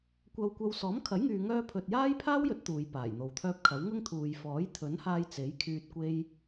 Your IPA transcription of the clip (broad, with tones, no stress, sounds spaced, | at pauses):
kʷ ɐ˥ w kʷ ɐ˥ w s ɔː˨˥ m kʰ ɐ˨˥ j ŋ yː˨ ŋ œː˧ pʰ ɵ˨ t̚ j aː˥ j pʰ aː˥ w j ɵ˨˥ t̚ t̪ uː˨˧ j p aː˨˩ j n̪ o˨ w t̪ʰ œː˥ p̚ kʰ ɐ˨˥ w ŋ ʊ˥ ŋ t̪ʰ uː˨ j f ɔː˨˥ j t̪ʰ ɵ˨˥ n h aː˧ j t͡s e˨˥ j kʰ yː˧ t̚ kʷ e˥ j